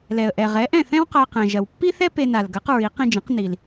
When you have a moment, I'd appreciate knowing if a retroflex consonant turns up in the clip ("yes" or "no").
no